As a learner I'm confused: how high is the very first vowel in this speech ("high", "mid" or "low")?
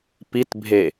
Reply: high